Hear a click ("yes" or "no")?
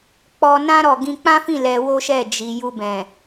no